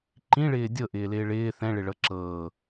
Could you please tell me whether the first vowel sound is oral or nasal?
nasal